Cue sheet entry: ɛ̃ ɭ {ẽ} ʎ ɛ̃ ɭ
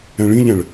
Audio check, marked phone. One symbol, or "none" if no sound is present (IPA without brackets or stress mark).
ĩ